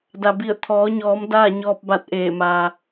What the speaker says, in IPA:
d a˩ b i˧˩ ə̯ t̪ʰ ɔː˩˧ ɲ ɔː˩˧ m d aː˥˨ ɲ ɔː˧ p̚ b a˧˩ t̚ ʔ eː˧˩ m aː˩

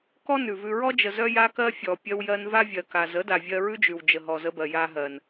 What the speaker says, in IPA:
k ɔ˦ n ʉ˨ v ʉ˧ ɹ ɔ˦ d͡ʒ ə˨ z œ˦ j a˦ k ɜ˦ fʲ ɔ˨ pʲ ɜ˧ w j ɜ˧ n v a˦ vʲ ɜ˨ k a˨ z ə˨˦ d a˨ vʲ ɜ˧ ɹ ʉ˦ d͡ʒ ʉ˨ w d͡ʒ ə˨ ɦ ɔ˨ z ə˧ b ɜ˨ j a˧ ɦ ɜ˨ n

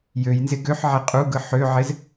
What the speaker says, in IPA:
j ø j n z ɪ ɡ ø ħ ʕ e qʼ u ɡ ɯ ħ ø ʕ ɪ z

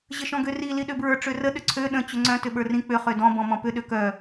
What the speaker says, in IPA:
ʑ ə ʃ ɔ̃ ɡ ø r i l i ɗ ø b ɹ ə˞ ʈ͡ʂ ø r ə ɗ ʏ ǀʰ ø ɗ ə̃ t͡ɕ ʏ ŋ͡ǀ œ̃ t ʏ ɓ ə˞ r ĩ k͡p ʏ χ ø d ɔ̃ b ɔ̃ m ɔ̃ p ʏ ɗ ø k œ

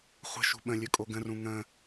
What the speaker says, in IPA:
χʷ ə̤ ʃ ṳ ɓ ə̃ lʲ ɵ kʼ o ɡ ə̃ r ũ ŋ ə̃

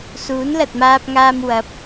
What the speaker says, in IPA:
s uː˨˥ n l ɐ˨ t̚ m aː˧ p̚ ŋ aː˧ m w ɐ˨˥ p̚

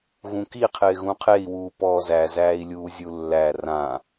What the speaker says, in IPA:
ɣ ũ k i qʰ ɪː ɣ ũ qʰ e i̯ w uː p ɔː z æ z æː i̯ lʲ uː zʲ u lː æ r ã

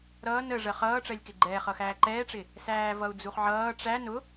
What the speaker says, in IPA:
ɾ ʌː n ə ʐ ɜ χ ʌː ʈ͡ʂ ɜ lʲ k ɪ ɡ͡ǃ ɛː χ ʌ x æː ǃ ɛː ʈ͡ʂ ɪ | s æː v ʌ u̯ d͡z u χ ʕ ʌː ʈ͡ʂ æ n ʊ

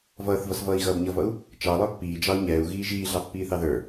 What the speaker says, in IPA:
v ʌː θ v ʌ s v ʌː i̯ ɣ ʌː b ɲ ʌ v ʌ u̯ | t͡ʃ ɑ lˠ ə˞ pː iː d͡ʒ ɑ u̯ ɲ ɛː u̯ ɣ iː ʒ iː ɮ ɑ pː iː θ ɑ ð ə˞

